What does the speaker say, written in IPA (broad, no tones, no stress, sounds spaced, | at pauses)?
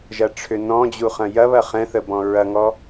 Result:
ʒ ɐ ʈ͡ʂʰ ʏ n ɔ̃ d͡ʑ u χ ɐ̃ j ɐ β ɐ χ ɛ̃ θ ə b ɔ̃ ɹ ɐ ŋ ɔ